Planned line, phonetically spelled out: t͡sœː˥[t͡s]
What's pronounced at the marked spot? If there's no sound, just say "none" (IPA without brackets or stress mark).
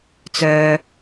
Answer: none